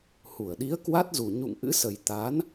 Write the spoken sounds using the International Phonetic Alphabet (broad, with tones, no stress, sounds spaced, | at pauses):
h u˧˩ ə̯ ɗ i˨˦ ə̯ k w a˦˥ t̚ z u˨˩ ɲ ṵ˧˨ ŋ ʔ ɨ̰˧˥ s ə˨˩ j t̪ a˨˦ n